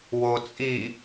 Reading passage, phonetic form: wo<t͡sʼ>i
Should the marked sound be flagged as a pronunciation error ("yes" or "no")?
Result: no